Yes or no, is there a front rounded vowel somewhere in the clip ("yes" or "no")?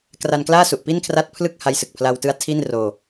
no